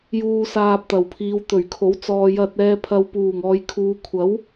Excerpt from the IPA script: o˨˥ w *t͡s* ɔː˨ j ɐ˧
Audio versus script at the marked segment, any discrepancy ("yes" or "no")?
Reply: no